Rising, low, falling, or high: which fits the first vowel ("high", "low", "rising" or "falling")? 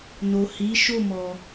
low